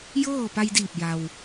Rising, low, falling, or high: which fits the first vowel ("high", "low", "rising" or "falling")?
falling